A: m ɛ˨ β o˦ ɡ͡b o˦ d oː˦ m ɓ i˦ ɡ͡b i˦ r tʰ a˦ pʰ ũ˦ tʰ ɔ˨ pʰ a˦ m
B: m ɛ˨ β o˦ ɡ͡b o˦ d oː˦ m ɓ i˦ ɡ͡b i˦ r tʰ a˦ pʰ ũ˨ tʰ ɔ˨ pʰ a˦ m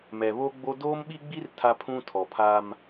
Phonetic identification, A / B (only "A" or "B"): A